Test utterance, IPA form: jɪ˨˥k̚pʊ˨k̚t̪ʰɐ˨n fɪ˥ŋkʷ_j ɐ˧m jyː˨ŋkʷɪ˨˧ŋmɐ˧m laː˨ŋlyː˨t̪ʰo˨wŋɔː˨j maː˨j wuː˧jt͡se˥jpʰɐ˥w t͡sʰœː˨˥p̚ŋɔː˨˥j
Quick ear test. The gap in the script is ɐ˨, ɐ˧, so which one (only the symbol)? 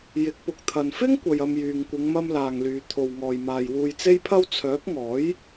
ɐ˨